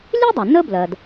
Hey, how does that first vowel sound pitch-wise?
high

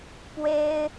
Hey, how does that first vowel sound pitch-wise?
high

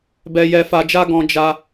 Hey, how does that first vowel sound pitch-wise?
low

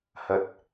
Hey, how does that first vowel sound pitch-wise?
low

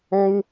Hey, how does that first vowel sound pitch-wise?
high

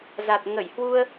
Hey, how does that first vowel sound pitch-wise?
low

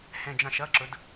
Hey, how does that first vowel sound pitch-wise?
falling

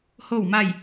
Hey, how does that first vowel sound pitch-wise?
falling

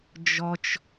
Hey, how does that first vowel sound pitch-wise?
high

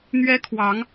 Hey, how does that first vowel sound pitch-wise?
high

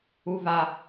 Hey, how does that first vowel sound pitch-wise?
high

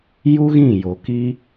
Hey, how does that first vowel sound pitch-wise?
high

